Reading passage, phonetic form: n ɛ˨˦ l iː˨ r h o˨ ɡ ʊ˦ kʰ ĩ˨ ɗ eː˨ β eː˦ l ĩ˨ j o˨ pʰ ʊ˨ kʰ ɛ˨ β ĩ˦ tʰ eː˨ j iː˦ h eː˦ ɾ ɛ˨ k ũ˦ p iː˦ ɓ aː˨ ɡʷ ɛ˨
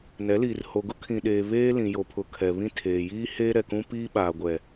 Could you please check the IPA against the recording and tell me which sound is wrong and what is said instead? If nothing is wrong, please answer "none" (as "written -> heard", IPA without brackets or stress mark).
none